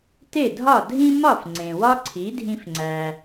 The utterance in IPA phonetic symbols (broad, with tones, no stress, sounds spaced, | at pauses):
t e˥˩ dʱ ɒ˥˩ dʱ ĩ˥ m ɒ˥˩ f ŋ͡ǀ ẽ˩ w ɒ˥ ǀʰ i˩˥ dʱ ĩ˧ f ŋ͡ǀ æ˩